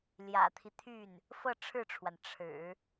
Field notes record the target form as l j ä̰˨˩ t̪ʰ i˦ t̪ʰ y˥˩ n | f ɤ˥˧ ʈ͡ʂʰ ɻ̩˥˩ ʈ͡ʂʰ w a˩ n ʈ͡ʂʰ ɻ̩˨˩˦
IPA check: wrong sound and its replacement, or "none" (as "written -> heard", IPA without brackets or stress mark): none